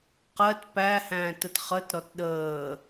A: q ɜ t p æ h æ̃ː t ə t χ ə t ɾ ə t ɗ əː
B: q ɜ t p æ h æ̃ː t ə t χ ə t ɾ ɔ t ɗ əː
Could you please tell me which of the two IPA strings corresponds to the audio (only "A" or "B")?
B